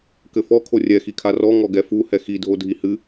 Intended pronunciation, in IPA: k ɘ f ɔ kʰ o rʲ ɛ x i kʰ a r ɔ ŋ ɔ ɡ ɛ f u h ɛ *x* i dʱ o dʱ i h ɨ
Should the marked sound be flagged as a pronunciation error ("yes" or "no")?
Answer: no